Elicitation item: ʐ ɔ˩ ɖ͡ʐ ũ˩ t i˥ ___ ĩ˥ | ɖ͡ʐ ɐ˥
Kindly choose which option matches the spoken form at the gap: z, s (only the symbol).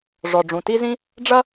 z